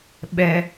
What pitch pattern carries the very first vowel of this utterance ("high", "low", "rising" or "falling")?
low